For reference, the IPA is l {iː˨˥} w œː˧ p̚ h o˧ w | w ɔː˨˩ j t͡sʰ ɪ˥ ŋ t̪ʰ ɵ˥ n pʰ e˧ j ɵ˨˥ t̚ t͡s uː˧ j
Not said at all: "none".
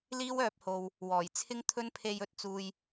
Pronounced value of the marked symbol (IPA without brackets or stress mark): iː˥